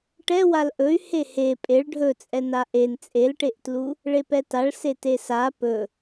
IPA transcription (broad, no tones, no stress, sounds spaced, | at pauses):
ʈ ɛ w a l ʔ ɵ y̯ h e h e pʼ e ɭ ɖʱ ɵ t͡sʼ ɛ n a ʔ e n t͡sʼ e l ʈ e ʔ t l u | ɭ e p ɛ t a ɭ s e t e s a p ɵ